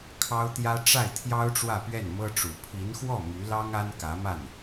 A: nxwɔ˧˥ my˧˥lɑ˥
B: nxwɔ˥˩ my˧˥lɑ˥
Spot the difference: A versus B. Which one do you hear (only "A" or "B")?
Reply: B